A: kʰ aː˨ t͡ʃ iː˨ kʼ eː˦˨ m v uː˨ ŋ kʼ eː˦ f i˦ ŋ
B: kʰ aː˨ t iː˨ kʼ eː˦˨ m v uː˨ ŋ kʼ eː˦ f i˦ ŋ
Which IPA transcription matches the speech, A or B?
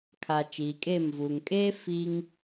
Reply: A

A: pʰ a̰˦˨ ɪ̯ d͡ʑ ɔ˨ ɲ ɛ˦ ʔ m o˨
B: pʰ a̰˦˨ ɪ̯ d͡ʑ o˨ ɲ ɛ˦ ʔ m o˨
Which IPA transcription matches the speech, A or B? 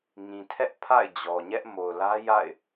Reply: A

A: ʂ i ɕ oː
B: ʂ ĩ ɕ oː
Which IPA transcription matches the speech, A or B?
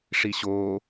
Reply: A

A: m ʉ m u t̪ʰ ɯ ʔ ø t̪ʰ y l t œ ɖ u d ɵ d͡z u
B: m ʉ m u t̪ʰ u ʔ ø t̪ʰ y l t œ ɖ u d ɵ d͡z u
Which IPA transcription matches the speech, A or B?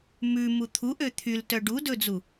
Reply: B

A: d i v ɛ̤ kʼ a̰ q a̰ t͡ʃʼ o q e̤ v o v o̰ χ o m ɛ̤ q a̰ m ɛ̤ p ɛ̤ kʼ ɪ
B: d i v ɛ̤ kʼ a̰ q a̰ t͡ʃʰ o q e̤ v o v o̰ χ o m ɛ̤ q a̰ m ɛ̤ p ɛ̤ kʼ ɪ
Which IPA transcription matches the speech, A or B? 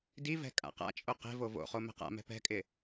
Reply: A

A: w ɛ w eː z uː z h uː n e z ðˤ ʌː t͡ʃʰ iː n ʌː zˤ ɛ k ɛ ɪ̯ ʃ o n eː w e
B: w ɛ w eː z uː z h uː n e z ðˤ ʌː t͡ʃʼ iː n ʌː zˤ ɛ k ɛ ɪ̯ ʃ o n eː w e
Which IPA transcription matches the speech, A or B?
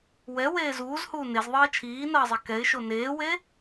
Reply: A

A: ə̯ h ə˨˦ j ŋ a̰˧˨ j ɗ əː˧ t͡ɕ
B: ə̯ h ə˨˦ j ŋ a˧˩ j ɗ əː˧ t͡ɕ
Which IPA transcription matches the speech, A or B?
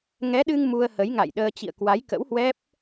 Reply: A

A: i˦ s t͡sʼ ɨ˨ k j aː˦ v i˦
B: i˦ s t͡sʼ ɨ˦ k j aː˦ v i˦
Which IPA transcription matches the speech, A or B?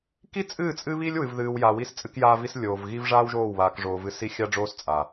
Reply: B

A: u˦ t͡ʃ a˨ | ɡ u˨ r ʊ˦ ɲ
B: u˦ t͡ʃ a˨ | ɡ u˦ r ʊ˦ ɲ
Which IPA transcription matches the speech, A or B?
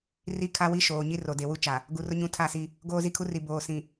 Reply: A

